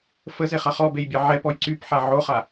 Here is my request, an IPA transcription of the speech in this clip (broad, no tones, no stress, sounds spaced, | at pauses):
f ə z e χ a χ ɔ b e j bʲ ɛ ʕ ɛ p ɔ j ǀ y p ħ a ʕ o χ a